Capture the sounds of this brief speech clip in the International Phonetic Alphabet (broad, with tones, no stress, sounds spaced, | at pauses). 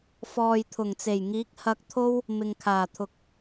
f ɔː˨ j t̪ʰ ʊ˨˩ ŋ t͡s e˨˩ j ŋ iː˨˥ k̚ h ɐ˧ k̚ t̪ʰ o˥ w | m ɪ˨ ŋ kʰ aː˨˩ t̪ʰ ʊ˨ k̚